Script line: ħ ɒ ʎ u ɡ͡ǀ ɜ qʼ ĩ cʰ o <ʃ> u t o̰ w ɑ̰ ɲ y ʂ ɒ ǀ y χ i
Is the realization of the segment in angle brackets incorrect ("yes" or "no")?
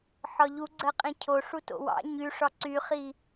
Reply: yes